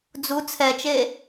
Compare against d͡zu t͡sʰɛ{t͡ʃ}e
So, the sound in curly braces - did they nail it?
yes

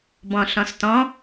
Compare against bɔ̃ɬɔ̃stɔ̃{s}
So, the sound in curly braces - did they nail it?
no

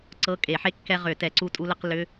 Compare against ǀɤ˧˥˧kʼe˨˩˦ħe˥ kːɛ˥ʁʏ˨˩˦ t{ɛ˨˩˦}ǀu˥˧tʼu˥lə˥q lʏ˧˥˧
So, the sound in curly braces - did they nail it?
yes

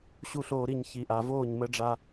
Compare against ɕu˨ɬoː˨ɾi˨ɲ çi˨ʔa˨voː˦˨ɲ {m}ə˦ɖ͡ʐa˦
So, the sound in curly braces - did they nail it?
yes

